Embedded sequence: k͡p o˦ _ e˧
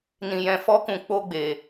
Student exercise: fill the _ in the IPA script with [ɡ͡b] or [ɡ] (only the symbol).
ɡ͡b